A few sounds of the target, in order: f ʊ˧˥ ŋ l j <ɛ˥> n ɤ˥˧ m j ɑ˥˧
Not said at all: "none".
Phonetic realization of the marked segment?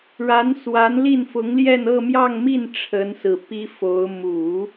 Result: ɛ˥˧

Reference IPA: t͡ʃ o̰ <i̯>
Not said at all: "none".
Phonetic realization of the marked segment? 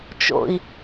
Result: i̯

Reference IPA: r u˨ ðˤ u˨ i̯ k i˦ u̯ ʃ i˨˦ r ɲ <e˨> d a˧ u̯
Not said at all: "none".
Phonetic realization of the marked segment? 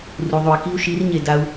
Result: e˨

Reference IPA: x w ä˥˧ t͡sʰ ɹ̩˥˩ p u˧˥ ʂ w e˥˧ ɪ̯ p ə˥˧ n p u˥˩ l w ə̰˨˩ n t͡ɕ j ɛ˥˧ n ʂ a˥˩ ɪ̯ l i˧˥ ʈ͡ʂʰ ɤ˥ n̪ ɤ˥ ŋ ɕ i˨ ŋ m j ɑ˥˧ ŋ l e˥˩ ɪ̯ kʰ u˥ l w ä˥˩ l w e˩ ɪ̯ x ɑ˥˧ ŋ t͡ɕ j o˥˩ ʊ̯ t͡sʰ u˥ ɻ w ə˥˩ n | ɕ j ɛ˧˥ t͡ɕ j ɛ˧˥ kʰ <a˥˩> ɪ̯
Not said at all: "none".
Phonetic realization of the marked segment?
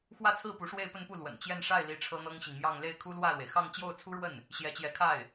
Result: a˥˩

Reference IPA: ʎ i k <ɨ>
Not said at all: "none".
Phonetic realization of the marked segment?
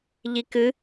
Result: ɨ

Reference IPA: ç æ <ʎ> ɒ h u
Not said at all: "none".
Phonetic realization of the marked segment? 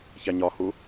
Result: ɲ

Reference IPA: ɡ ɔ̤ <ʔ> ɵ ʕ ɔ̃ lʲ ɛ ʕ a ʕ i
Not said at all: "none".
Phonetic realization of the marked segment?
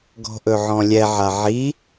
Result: ʔ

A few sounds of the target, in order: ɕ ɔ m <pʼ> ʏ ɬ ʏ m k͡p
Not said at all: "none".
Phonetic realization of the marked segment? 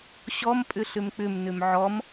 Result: pʼ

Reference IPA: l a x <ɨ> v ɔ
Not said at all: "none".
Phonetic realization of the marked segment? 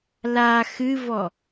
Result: ɨ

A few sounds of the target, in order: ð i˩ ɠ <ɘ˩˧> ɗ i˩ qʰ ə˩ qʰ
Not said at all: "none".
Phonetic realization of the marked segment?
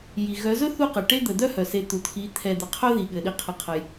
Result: ɘ˩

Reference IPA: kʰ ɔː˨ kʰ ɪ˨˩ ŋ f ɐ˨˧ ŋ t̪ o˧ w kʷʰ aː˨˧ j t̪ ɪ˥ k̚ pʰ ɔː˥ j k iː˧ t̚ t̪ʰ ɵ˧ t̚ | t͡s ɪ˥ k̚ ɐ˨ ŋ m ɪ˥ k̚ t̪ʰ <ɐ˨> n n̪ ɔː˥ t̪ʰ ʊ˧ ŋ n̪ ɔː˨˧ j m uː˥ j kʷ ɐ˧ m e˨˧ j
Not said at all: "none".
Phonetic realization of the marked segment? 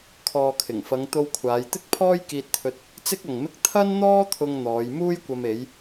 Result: ɐ˥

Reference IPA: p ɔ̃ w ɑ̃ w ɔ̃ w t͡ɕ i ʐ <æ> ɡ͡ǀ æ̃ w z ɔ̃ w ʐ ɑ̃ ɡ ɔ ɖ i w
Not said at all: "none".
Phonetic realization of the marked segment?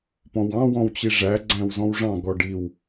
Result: æ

